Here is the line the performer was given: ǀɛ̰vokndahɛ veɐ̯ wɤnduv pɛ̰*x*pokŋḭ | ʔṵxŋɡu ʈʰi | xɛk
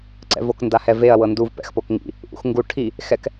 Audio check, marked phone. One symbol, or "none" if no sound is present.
x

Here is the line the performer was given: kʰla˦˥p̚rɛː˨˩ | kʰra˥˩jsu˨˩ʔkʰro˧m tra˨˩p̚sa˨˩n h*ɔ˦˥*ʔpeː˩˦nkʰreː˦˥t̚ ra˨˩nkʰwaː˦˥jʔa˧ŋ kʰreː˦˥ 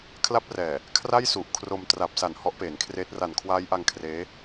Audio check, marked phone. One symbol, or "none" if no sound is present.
ɔ˦˥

